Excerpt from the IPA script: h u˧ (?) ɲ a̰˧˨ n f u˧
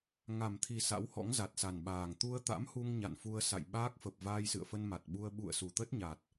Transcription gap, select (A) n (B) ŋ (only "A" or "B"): B